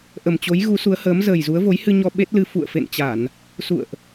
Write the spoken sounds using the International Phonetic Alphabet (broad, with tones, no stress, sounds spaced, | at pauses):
ʔ ə˨˩ m t͡ɕ o˨˦ j ɣ u˨˦ s u˨˦ ə̯ h əː˨˦ m z əː˨˩ j z u˨˦ ə̯ v o˨˦ j h ɨ˧ ɲ ɔ˧ ɓ e˦˥ t̚ l ɨ˧ f ṵ˧˨ ə̯ f ḛ˧˨ n t͡ɕ a˧˩˨ n | s ṵ˧˨ ə̯ ʔ